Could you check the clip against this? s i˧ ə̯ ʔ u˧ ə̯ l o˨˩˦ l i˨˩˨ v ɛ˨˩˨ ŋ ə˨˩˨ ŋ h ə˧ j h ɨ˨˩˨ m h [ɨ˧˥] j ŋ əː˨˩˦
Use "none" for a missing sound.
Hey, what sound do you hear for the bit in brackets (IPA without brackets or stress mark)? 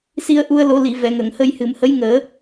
ə˧˥